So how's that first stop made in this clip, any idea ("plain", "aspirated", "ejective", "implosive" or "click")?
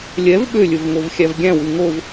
implosive